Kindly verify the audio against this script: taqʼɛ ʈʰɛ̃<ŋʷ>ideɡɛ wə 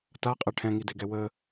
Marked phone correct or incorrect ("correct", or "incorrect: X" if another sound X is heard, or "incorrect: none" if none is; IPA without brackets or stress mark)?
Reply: incorrect: ŋ